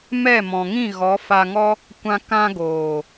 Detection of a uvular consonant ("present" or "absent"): absent